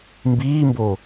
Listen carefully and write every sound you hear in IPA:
mbiːmbo

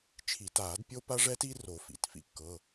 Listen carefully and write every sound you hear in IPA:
t͡ʃʰi˨˩˦taː˨˩˦d pʲo˦pa˦ʐɛ˦ti˦ ro˨˩˦fḭ˩˧˩tfḭ˦ kːɤ˩˧˩

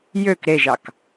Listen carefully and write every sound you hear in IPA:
jøk ɾeʒɑk

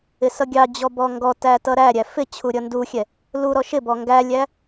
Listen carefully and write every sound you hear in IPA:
ɪsʌɡʲɑd͡ʑɔ bɔŋɡɔtæ tʌɾæɾʲæ fɪ t͡ɕʰuɾʲʌnduxʲɛ | lu ɾɔʃɪbɔ ŋɡælʲæ

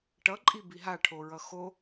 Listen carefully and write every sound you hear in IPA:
ʈʌǃʼi biɦaʈʰoɹʌ xo

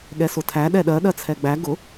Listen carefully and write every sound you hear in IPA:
ɠɛsʊtʰæ ɗɛɗɜ ɗɜt͡sʰɛɡ͡bæ ɡʊ

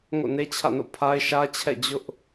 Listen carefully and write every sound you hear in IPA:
ŋo̰˦˨ne˦t͡ɕʰä̰˦˨no̰˦˨ pʰa˦ɪ̯ʃä˦t͡ɕʰɛ̰˦˨ d͡ʑʊ˦ʔ

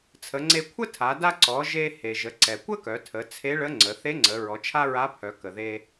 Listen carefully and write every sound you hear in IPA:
t͡sʰə˩˧ŋ͡ǀe˧ kʷʰə˥tʰa˩˧ da˧ǀɔ˩˧ ʒe˧ he˩ʒə˩˧ǀɛ˩ kʷə˥kœ˩˧tʰə˩˧ t͡sʰe˧˥ɭə˧˥ŋ͡ǀə˩˧ θe˧˥ŋ͡ǀə˩˧ ɹɔ˩˧t͡ʃʰa˥ɹa˧˥pʰœ˩˧ kə˩ðe˧

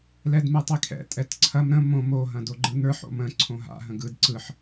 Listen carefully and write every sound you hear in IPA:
lɛdmɯtˤikʰɛ̰ tʼɛtǀʰɐm ɾə̃ mõ mo ɦɐ̃doɡ͡ǃɯnə˞ħ o̰mə̃ ǀʰõɦa̰ ɦə̃ɡɯd ǀɯħ

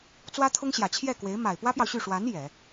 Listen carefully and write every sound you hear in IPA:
t͡swä˥t̪ʰʊ˥ŋɕjä˨˩ t͡ɕʰjɛ˥˩kwe˧˥ɪ̯ ma˨˩ɪ̯pwä˥pjɑ˨ʊ̯ɕy˥˩ ʂwa˧˥n jɛ˨˩˦

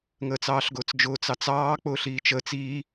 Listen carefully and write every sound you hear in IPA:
ŋəːt͡sɑːɬɡʊːt͡sd͡ʒʊː t͡sɑt͡sɑː k͡pʊːɬiːt͡ʃəːt͡s i

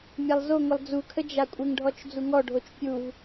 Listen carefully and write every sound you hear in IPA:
mʲalˠzoŋʷəlˠ d͡zukʰə d͡ʒakʷʼɪŋɖʱɔt͡ʃ d͡zuŋɔɖʱot͡ʃ pʲuv

